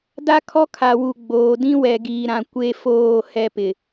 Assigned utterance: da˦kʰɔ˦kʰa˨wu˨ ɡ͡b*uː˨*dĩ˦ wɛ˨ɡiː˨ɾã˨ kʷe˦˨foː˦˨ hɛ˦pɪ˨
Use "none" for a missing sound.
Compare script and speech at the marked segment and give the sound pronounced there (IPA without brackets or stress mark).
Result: oː˨